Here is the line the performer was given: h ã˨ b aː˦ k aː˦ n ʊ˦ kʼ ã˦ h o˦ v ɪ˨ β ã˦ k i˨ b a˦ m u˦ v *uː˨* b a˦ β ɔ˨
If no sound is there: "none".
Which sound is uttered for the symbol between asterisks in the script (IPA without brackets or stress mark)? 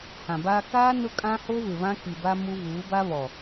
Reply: uː˨˦